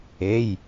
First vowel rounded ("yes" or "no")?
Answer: no